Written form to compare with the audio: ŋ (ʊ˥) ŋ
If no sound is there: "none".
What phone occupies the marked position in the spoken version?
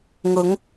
ʊ˨˧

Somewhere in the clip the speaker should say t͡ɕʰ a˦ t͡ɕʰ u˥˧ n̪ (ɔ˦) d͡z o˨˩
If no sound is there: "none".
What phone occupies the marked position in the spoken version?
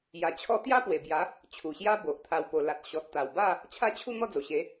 ɔ˥˧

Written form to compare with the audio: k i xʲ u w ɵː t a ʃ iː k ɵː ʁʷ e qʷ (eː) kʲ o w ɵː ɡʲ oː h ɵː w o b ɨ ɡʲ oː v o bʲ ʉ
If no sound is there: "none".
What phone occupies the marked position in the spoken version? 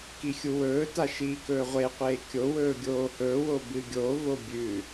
eː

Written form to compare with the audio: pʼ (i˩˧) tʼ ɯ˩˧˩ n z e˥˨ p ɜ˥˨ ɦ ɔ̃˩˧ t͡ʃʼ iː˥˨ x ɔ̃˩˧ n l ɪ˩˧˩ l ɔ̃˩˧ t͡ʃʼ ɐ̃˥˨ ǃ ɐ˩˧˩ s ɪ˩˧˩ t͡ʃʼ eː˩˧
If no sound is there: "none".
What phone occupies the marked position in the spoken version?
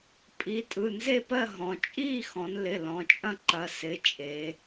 i˩˧˩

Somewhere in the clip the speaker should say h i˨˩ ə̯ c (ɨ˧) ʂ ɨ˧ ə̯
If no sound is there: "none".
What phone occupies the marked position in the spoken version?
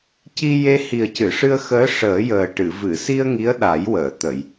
ɨ˨˩˨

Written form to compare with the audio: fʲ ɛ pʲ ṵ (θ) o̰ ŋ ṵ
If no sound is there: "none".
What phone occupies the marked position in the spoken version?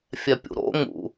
ɾ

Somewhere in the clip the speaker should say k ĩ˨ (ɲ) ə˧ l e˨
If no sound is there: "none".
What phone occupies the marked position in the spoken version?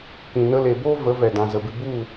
n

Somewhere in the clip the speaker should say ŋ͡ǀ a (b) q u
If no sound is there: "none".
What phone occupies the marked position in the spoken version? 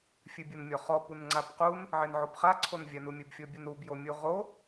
b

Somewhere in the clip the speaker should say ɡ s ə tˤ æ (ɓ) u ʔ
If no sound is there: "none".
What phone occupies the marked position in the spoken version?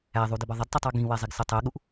ɠ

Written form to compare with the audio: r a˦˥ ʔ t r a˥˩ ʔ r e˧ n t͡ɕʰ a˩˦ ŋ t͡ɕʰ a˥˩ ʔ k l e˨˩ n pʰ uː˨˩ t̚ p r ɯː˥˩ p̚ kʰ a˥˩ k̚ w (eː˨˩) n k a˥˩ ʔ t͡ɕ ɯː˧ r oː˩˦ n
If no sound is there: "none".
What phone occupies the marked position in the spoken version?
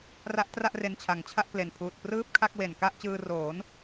e˨˩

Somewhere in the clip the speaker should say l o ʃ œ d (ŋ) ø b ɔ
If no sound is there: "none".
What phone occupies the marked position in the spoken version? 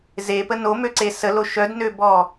n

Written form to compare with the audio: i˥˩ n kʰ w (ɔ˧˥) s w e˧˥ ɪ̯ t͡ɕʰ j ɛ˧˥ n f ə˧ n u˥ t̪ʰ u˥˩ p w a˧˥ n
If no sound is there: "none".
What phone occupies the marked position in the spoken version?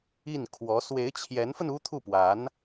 ɔ˧˥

